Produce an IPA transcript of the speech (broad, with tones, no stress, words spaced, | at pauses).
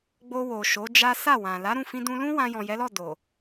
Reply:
ɡ͡bo˧wo˨ ʃo˨˦d͡ʒa˦ sa˦˨wã˨ la˨˦ɾũ˦˨ fĩ˧dũ˧lũ˦ wã˧jɔ̃˨jɛ˨˦lɔ˦˨ do˨